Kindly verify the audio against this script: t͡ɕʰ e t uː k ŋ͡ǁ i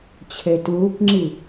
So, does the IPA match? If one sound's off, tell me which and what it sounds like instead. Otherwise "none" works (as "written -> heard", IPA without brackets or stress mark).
none